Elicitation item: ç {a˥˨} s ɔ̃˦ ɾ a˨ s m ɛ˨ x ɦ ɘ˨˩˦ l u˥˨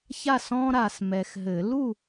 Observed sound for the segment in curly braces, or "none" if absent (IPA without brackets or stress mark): a˥˨